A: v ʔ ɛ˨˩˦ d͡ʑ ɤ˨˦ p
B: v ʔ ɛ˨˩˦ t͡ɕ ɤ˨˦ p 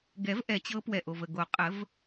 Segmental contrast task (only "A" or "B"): B